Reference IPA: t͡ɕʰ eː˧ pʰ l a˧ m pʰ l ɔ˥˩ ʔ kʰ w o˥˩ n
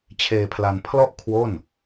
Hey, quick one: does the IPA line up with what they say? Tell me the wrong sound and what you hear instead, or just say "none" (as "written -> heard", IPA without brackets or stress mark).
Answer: m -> n